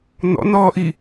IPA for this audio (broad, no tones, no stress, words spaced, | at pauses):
n̪ɔ̰n̪ɔːʔi